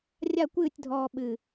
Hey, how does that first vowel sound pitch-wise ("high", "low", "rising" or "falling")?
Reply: falling